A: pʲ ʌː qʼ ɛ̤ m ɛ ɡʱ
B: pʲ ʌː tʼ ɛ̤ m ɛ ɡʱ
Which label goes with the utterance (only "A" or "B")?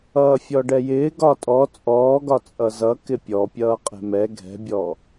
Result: A